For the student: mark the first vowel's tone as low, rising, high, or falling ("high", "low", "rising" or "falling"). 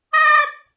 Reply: high